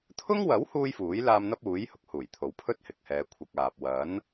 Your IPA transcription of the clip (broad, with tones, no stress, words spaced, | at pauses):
t̪ʰʊ˥ŋwɐ˨˥w huː˥jfuː˨˥j laː˧m n̪ɐ˥p̚uː˨˥j hʊ˨˥k̚huː˨˩jt̪ʰo˨˥wpʰɵ˥t̚ hɪ˨k̚hɛː˨˧ kʷʰɐ˨k̚ aː˨p̚ wɐ˨˥n